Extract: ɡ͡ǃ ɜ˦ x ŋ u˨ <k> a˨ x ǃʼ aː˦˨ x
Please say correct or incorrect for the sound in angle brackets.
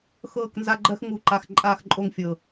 incorrect: ǃ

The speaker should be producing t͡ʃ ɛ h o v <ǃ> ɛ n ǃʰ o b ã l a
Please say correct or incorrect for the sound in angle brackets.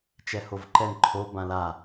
correct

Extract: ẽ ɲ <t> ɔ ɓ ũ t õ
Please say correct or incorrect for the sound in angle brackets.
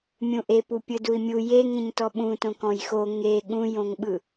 correct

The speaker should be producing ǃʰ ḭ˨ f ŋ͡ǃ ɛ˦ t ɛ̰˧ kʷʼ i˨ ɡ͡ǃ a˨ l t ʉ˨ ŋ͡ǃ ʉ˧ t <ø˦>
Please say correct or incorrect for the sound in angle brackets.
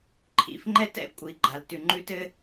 incorrect: ɘ˦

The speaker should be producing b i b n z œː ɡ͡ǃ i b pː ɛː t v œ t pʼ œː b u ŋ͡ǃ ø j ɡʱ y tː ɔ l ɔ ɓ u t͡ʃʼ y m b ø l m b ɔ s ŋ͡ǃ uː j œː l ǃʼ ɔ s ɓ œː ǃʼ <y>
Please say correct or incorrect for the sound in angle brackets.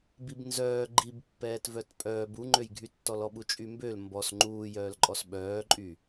correct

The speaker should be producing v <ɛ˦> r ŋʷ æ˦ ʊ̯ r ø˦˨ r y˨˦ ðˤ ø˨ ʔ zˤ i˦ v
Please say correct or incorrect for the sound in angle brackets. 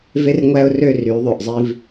incorrect: e˦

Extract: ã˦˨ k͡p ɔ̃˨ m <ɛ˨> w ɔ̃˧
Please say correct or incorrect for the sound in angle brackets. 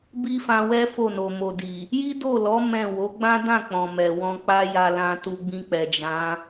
correct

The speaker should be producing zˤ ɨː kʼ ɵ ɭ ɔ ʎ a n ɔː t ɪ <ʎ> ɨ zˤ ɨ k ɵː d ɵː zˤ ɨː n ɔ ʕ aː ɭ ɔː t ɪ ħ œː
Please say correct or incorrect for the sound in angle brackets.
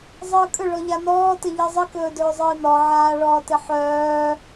correct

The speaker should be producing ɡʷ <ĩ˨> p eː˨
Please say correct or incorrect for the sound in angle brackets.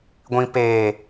correct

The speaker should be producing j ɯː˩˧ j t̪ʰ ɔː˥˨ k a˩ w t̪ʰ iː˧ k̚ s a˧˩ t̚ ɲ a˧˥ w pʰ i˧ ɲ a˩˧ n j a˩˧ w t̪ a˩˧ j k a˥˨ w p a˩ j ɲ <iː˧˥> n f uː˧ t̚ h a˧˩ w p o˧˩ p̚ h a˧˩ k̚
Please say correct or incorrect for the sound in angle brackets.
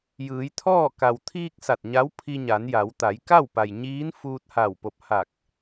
correct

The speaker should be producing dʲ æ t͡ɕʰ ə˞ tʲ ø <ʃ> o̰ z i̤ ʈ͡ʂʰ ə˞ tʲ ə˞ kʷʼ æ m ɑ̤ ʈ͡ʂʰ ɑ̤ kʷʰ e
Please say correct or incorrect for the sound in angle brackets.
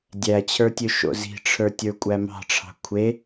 correct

